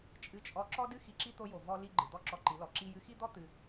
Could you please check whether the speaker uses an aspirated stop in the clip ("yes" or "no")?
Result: no